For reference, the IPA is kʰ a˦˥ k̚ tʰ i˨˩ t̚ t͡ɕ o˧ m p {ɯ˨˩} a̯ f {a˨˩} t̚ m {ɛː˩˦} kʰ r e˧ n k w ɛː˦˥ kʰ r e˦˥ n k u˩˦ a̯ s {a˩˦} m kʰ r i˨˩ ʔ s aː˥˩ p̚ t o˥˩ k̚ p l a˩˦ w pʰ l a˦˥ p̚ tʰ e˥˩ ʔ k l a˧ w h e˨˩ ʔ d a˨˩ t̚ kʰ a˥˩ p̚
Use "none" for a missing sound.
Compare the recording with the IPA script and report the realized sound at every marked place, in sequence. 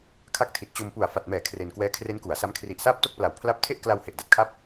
u˨˩, a˨˩, ɛː˩˦, a˦˥

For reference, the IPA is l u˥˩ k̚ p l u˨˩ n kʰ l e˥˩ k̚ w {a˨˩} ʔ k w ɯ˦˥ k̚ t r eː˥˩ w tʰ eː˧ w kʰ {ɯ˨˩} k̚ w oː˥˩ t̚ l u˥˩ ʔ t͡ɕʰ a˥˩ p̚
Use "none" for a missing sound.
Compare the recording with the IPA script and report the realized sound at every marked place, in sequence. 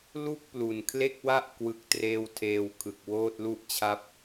a˥˩, ɯ˨˩

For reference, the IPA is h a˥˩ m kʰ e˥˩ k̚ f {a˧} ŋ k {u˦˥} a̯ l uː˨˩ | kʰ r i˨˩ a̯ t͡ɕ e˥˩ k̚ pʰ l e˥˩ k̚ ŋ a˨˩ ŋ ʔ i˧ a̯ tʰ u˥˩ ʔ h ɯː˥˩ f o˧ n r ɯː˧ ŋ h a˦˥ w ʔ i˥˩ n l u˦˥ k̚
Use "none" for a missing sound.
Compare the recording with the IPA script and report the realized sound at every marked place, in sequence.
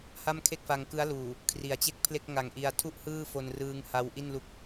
a˧, ɯ˦˥

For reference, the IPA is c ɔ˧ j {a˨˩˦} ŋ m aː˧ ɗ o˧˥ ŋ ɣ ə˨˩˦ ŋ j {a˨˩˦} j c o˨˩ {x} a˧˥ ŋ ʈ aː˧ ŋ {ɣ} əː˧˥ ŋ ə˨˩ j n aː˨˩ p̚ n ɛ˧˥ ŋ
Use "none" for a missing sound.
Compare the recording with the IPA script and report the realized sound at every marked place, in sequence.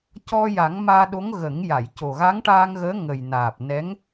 a˨˩˦, a˨˩˨, ɣ, ɣ

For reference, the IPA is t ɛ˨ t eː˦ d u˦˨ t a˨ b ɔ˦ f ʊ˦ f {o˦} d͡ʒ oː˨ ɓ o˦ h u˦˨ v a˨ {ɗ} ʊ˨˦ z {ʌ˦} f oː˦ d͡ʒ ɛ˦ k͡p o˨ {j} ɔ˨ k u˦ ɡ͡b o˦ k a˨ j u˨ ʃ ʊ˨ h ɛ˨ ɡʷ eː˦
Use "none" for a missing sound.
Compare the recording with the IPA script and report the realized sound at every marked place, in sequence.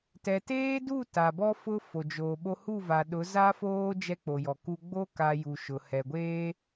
o˨, ɗ, a˦, j

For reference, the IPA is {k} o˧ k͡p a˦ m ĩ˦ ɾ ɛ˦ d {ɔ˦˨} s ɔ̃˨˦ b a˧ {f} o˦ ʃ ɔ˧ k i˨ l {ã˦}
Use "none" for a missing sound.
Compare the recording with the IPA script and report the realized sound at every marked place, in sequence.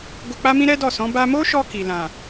ɡ, ɔ˦˨, m, ã˨

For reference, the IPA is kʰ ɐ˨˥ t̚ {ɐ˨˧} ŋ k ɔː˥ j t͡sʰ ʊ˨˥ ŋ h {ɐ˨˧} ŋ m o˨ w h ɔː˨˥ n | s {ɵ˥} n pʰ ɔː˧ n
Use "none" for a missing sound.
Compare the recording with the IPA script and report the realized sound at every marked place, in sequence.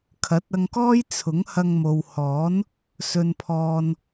ɐ˧, ɐ˧, ɵ˧

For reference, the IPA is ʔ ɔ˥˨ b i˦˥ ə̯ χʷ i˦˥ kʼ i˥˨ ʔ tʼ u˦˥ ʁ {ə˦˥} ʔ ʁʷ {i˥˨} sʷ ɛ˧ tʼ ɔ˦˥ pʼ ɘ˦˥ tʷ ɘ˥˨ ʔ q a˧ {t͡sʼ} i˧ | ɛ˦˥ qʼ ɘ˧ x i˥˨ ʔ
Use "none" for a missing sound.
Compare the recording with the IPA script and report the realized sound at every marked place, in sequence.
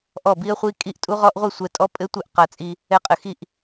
ɔ˦˥, i˥˨, t͡sʼ

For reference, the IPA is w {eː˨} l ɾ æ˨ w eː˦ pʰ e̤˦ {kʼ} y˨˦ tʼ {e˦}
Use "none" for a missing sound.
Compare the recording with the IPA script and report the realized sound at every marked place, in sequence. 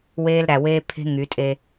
eː˦, ŋ, e˦

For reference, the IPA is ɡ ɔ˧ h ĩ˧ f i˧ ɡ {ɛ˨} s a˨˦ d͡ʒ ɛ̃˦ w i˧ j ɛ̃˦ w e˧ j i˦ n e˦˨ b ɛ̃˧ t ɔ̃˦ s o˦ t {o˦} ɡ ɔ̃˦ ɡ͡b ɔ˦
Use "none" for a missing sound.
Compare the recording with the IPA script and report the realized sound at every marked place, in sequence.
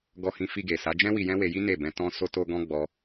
e˨, o˦

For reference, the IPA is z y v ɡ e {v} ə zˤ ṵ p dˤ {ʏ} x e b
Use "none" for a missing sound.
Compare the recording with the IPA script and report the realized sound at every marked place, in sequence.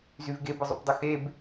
b, ʏ

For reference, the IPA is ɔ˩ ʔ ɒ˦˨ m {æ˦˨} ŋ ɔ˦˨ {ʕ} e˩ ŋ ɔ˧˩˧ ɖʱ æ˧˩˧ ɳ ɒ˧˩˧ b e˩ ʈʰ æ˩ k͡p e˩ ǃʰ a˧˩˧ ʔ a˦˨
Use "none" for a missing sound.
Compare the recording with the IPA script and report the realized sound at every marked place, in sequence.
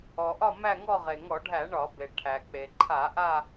æ˦˨, ʁ

